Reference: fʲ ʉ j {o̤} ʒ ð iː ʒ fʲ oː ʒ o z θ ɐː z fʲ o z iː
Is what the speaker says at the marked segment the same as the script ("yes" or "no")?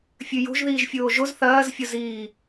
yes